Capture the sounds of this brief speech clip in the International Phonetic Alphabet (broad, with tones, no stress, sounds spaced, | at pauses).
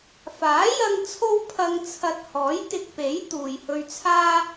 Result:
f aː˨˥ j ɐ˧ ŋ t͡sʰ o˥ w pʰ ɐ˧ ŋ t͡sʰ ɐ˧ t̚ h ɔː˨˥ j t̪ ɪ˧ k̚ p e˨˥ j t̪ uː˨ j h ɵ˧ ɥ t͡sʰ aː˥